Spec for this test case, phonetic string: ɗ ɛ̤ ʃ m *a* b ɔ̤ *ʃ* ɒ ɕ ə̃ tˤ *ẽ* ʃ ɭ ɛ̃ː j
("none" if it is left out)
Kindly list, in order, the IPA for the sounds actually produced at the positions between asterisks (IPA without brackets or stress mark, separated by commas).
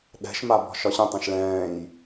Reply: a, ʃ, ẽ